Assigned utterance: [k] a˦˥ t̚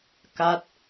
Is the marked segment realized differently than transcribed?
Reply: no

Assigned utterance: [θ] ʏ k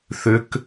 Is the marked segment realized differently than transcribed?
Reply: no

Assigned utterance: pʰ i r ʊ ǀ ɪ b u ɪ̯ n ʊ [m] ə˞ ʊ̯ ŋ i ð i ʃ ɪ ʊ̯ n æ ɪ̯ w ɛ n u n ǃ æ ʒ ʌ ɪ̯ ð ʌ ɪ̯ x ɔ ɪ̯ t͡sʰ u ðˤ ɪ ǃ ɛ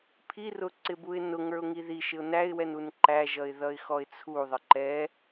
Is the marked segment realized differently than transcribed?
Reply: yes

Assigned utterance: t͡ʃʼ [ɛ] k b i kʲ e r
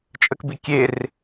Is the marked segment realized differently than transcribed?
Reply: yes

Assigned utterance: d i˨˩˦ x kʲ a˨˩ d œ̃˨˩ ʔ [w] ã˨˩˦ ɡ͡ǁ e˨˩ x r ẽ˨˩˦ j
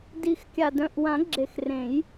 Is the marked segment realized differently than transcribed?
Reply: no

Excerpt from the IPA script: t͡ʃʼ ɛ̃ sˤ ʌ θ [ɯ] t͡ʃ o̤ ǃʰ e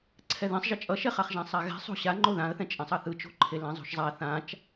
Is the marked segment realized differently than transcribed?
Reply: no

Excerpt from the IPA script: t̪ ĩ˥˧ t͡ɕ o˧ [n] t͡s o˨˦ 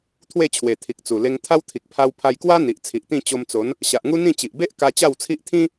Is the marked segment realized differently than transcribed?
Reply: yes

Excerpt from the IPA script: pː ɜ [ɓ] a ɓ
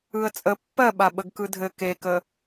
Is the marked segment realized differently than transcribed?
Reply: no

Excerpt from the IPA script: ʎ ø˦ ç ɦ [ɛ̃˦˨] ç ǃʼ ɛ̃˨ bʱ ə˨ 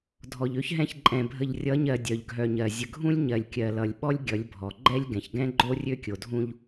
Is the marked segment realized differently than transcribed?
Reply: no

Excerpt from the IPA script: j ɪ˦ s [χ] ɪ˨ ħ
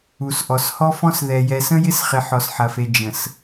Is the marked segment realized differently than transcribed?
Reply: no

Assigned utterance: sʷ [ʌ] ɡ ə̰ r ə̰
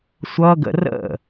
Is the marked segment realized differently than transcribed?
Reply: no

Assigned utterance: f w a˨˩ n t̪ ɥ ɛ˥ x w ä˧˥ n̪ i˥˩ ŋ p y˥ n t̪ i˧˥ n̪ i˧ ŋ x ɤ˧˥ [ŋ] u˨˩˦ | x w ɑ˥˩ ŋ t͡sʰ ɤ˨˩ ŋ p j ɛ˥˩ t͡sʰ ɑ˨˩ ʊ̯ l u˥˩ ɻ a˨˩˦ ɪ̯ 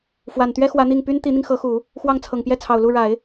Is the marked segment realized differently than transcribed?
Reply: yes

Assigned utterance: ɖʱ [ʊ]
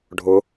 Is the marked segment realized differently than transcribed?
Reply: no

